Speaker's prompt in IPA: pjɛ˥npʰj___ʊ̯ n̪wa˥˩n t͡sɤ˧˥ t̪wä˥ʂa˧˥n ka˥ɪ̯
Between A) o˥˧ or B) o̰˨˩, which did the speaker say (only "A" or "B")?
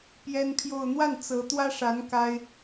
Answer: A